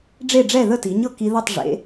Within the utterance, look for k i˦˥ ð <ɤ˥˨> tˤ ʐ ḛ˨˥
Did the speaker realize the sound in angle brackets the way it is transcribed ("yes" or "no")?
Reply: yes